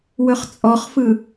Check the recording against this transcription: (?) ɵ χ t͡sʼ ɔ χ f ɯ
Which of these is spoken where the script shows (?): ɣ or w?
w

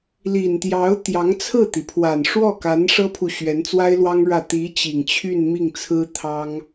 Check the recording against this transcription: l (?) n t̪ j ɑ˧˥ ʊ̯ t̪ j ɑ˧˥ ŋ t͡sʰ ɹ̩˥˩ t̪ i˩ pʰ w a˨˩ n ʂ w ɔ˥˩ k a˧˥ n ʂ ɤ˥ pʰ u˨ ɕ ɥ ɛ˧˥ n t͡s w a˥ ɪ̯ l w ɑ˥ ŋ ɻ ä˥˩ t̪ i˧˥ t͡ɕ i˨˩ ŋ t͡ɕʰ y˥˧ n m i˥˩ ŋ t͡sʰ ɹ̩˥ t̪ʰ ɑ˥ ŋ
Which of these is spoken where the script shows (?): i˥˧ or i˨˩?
i˨˩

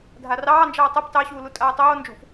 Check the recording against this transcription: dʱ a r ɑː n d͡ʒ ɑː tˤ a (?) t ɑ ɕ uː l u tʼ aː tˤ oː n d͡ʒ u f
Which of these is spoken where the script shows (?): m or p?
p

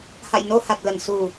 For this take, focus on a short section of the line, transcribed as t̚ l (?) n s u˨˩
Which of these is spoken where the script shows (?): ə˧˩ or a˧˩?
ə˧˩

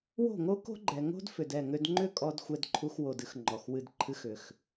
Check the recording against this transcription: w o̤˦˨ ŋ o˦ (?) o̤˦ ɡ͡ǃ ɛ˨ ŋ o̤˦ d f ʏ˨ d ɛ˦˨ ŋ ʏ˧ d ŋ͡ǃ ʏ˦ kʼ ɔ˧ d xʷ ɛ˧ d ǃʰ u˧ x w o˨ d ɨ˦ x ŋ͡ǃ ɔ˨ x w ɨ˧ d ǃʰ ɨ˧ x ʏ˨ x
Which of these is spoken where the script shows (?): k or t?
k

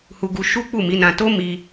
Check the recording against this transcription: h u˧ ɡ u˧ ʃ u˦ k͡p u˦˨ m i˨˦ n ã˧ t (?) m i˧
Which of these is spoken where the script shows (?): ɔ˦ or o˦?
o˦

